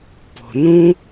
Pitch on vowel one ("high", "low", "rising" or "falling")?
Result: low